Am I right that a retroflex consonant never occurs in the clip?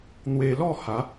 yes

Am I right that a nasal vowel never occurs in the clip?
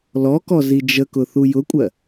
yes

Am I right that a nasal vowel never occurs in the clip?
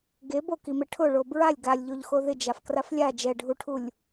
yes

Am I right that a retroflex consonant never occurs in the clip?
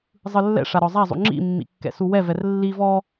no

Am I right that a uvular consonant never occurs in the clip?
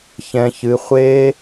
no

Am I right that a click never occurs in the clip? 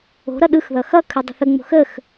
yes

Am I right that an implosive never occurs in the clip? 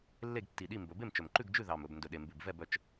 no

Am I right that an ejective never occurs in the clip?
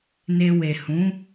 yes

